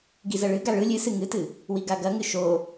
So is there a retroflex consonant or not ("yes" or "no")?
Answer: yes